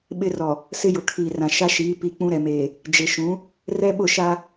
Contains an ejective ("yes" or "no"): no